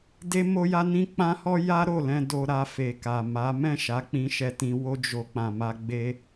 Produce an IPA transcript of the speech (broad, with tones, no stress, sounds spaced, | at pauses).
d e˦ m o˦ j a˦ n ĩ˦ k͡p ã˦ h ɔ˦ j a˦ ɾ o˦˨ l ɛ̃˧ d o˧ ɾ a˧ f e˨ k a˨ m a˨˦ m ɛ̃˦˨ ʃ a˨˦ k͡p ĩ˧ ʃ ɛ˧ t ĩ˧ w o˦ d͡ʒ o˧ k͡p ã˨ m a˧ ɡ͡b e˦